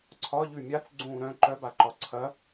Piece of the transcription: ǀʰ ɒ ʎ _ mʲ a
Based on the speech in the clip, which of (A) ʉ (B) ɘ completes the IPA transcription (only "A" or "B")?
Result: A